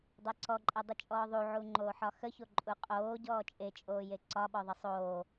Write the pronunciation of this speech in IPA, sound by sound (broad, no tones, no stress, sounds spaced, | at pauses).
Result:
dˤ ɛ ǀ ɔ ǃʼ ɛ dˤ ə t͡ʃʼ ɔː ðˤ u ʕ u ŋ͡ǃ oː ħ ɒ x ə ç o ǃʼ u qʼ oː ɟ ɔː t͡ʃʼ e t͡ʃʼ oː j e ǀ ɒ ɓ ɔ ðˤ ə sˤ oː